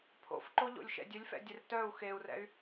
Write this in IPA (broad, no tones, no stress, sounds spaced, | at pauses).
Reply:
pʰ o̰ f ǃ o ʎ o̰ lʲ ʃ ɛ̰ dʲ œ lʲ f ɛ̰ dʲ ɛ r t œ u̯ x e u̯ r ɛ̰ y̯